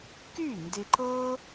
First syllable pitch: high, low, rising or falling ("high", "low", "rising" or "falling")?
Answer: falling